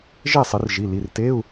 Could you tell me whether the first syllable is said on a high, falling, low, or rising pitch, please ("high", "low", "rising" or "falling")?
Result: falling